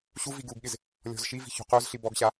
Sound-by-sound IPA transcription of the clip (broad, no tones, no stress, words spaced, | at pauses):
ɕuvi ɡuɡɠɪz | lʲɔ̤zʃivi̤ ço̤qozɬi bɔɡɕa